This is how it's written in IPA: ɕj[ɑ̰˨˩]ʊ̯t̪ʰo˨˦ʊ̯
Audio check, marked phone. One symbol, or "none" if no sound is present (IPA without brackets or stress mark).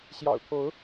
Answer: ɑ̰˨˩